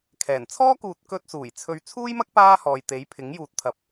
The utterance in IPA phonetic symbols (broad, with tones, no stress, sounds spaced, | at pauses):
kʰ ɛː˨˩ n t͡sʰ ɔː˥ k uː˨ t̚ k ɵ˧ t̚ s uː˨˩ j t͡sʰ ɵ˨˧ ɥ t͡sʰ uː˥ j m ɐ˥ k̚ p aː˥ h ɔː˨ j t̪ e˨˥ j pʰ ɪ˨˥ ŋ j uː˨ t̚ t̪ʰ ɐ˨ p̚